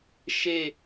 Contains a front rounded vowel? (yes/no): no